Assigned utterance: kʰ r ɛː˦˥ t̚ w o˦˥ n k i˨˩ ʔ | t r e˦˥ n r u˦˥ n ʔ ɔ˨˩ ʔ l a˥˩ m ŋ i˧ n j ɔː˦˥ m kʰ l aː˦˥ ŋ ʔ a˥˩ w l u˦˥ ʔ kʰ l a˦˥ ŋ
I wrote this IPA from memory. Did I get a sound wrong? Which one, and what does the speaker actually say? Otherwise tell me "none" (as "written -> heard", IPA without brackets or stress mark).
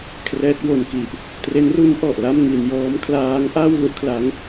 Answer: o˦˥ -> o˧